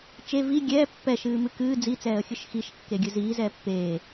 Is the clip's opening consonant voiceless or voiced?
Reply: voiceless